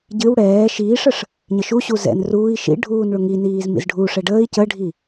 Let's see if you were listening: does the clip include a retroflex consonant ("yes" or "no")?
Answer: yes